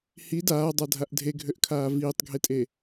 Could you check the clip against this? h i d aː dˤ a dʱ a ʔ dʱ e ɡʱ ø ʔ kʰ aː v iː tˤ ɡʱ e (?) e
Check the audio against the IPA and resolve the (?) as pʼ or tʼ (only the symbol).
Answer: tʼ